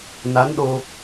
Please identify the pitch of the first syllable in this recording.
rising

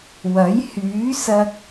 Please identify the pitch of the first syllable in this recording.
rising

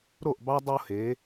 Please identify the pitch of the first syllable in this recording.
falling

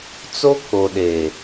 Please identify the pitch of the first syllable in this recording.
high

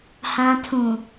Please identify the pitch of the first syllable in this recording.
low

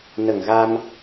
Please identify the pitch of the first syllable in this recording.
low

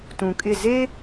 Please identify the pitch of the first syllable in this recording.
low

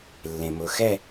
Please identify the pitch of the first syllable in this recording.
low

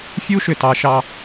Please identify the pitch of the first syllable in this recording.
high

